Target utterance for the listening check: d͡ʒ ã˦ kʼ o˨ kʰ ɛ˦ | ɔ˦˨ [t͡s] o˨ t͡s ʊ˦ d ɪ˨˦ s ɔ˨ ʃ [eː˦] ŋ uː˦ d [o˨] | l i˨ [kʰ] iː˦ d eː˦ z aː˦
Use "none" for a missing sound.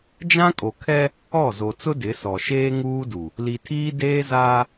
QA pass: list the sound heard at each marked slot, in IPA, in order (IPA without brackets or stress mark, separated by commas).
z, eː˦, u˨, tʰ